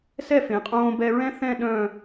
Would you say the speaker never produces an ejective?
no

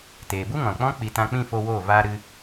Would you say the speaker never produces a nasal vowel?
no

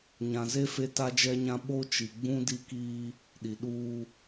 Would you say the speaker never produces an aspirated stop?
yes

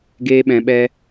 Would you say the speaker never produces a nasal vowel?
no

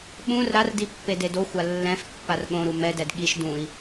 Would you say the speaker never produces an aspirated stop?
yes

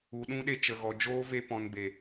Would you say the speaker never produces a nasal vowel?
no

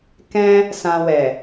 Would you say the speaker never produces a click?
yes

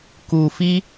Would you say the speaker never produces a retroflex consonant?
yes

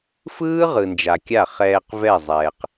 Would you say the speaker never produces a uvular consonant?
no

